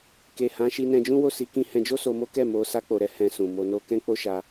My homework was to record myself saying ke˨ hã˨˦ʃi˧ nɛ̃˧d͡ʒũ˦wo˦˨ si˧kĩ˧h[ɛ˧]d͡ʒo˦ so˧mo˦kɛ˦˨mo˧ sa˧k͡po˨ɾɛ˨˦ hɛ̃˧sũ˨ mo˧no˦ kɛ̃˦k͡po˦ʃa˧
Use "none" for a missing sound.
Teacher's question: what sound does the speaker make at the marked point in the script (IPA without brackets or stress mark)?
ɛ̃˧